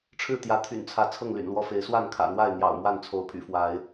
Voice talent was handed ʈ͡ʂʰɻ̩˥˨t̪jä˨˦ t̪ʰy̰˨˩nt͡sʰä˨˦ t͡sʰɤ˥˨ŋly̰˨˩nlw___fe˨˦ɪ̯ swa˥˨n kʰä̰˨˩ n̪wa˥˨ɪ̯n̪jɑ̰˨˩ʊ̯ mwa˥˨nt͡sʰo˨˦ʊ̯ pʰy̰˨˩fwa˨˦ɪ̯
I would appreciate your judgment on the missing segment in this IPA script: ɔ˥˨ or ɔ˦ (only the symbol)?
ɔ˦